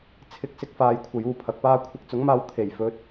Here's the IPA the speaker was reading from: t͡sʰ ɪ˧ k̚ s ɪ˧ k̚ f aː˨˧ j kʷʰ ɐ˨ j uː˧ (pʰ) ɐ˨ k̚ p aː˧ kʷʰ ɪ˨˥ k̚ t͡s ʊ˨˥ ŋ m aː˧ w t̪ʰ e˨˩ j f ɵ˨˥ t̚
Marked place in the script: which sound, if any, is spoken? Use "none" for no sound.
pʰ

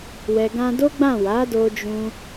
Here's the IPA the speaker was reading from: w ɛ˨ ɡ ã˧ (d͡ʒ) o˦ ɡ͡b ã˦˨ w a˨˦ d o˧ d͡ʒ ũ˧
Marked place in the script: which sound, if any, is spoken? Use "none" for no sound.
d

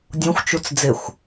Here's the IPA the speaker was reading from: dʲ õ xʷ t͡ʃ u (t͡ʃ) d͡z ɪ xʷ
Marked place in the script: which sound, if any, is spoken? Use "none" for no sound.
t͡s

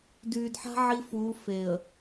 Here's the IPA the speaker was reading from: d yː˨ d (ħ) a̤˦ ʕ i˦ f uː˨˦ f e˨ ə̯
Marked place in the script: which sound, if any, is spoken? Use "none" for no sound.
ħ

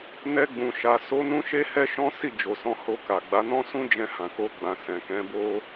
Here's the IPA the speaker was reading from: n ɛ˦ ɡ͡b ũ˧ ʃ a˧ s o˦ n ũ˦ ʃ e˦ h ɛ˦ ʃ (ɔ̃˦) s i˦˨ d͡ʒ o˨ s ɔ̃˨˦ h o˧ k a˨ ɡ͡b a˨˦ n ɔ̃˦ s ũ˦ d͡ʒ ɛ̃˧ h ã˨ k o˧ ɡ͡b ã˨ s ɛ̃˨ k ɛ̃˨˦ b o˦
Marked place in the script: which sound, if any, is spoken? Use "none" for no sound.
ɔ̃˦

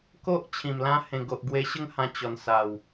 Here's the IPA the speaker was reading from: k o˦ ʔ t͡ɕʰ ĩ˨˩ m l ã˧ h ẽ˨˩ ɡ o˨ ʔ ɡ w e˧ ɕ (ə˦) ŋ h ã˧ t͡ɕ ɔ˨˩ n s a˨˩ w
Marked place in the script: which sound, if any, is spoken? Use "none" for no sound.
ə˥˧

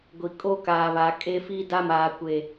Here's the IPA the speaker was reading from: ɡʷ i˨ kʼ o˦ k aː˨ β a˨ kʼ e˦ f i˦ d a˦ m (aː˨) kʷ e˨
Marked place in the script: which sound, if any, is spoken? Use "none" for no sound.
aː˨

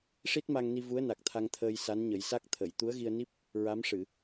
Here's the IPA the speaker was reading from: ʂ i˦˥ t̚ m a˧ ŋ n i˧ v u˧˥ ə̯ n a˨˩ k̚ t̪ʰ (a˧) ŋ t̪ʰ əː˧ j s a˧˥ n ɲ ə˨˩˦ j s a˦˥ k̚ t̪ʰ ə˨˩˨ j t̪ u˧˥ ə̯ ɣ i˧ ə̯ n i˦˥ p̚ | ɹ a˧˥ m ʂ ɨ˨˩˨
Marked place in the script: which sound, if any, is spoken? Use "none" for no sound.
a˧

